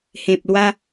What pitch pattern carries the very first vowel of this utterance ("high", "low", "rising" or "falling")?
low